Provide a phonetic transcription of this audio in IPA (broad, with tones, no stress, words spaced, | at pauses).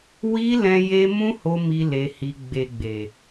wi˧ lɛ̃˦je˦ mũ˦ho˧ mi˦le˧hi˧ ɡ͡be˨ɡ͡be˨